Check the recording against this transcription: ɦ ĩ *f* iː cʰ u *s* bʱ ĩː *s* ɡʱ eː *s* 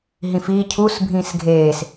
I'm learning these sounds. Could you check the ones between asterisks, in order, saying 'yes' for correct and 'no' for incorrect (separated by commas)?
yes, yes, yes, yes